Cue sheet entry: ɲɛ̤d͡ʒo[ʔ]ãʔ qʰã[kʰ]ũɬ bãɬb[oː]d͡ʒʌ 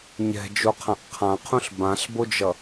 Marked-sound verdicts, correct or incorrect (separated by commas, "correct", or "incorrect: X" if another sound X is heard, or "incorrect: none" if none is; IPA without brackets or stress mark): incorrect: qʰ, incorrect: qʰ, incorrect: o